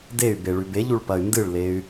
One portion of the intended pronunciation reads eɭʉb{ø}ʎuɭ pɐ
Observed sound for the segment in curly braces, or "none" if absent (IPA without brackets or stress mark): e